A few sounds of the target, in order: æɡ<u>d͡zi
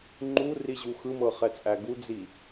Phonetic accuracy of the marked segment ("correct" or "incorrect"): correct